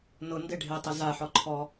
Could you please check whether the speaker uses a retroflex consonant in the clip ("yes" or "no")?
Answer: yes